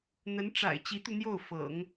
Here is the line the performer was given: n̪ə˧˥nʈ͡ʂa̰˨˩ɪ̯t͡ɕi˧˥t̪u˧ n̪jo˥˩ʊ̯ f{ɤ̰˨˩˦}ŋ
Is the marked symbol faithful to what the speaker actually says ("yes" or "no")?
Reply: yes